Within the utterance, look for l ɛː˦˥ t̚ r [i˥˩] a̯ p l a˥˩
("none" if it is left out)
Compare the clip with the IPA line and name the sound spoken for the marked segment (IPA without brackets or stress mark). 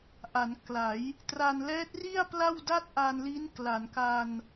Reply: i˥˩